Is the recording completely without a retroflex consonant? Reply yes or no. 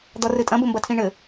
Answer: no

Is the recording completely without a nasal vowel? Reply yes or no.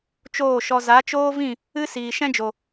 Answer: no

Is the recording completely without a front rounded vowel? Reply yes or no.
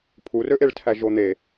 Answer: no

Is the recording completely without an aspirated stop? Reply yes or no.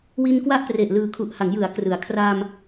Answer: no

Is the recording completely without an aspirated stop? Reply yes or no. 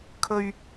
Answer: no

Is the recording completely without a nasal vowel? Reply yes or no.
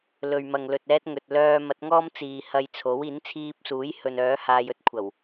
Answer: yes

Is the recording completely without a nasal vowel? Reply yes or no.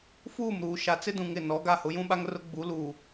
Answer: no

